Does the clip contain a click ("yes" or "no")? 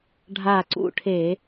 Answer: yes